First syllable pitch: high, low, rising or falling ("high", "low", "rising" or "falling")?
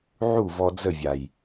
falling